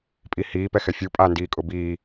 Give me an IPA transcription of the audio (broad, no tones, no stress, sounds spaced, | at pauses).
pʼ i h iː p ɛ x ɛ fʲ u pʼ a n d iː kʼ ʊ b iː